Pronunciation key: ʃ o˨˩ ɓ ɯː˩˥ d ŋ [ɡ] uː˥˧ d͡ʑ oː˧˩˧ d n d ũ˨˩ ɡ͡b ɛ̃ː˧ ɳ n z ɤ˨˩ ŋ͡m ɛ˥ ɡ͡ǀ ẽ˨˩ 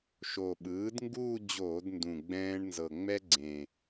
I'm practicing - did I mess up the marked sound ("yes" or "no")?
no